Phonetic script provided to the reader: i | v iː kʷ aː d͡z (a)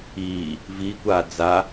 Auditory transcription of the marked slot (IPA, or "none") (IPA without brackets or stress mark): a